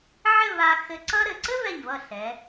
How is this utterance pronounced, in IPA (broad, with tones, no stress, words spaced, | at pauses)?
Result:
ʕɘ˥˧va˧ xɘ˧ǀʌ˥ɾɘ˩˧ ǀɘ˥vɛ˧˩ɲvʌ˧˩ ɬɛ˩˧